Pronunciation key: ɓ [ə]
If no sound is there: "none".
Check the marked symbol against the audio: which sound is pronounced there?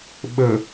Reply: ə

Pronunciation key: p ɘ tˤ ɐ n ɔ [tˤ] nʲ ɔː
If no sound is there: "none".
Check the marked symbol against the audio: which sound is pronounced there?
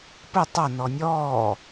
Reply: none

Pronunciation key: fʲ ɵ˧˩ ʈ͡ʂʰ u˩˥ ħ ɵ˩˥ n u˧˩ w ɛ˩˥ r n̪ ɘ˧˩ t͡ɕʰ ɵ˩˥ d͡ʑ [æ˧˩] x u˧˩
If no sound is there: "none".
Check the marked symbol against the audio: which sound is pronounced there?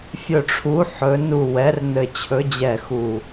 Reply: ɛ˧˩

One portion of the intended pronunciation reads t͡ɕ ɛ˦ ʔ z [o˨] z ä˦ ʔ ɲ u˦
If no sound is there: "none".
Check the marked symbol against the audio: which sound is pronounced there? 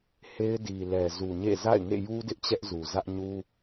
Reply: u˨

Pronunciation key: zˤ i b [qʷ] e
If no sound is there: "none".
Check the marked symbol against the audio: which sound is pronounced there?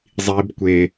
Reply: kʷ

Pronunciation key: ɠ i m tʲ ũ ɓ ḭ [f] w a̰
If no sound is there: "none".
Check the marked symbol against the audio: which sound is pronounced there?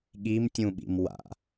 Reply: m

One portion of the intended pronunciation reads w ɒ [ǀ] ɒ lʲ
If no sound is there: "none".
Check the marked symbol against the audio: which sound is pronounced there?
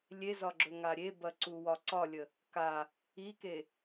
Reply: ǀ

